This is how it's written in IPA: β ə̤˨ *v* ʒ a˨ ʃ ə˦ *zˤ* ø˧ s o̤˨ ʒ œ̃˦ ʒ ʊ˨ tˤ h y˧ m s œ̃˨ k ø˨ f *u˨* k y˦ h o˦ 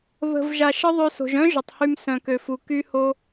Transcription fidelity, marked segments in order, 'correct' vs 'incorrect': correct, incorrect: ðˤ, correct

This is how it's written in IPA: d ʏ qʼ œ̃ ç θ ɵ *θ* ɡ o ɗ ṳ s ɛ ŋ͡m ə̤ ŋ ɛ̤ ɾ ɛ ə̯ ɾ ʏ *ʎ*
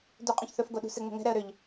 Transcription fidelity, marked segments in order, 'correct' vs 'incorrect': incorrect: f, correct

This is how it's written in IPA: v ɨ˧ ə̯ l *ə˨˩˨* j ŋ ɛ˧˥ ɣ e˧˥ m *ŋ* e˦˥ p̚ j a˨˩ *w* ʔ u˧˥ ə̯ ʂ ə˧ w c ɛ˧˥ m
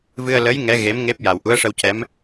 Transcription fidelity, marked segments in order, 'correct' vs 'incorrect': incorrect: ə˧˥, correct, correct

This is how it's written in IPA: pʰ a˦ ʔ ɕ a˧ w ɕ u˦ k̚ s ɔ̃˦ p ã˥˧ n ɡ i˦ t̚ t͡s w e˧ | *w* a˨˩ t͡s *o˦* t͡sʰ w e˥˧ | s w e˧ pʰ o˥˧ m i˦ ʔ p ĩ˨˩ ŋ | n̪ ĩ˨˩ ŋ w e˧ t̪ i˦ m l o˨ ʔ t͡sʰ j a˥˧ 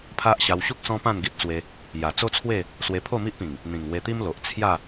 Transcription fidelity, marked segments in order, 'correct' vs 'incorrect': incorrect: j, correct

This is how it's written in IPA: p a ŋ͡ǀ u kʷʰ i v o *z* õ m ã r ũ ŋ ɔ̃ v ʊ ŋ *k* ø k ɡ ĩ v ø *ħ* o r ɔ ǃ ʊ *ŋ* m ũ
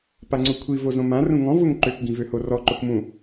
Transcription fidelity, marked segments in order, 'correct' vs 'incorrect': correct, incorrect: ǃ, incorrect: h, incorrect: k

